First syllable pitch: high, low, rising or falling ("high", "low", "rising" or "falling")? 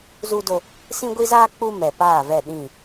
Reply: high